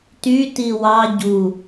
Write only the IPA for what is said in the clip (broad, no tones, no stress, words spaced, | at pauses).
ty tiwɑ ɟu